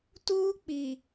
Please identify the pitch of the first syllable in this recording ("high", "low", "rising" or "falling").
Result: high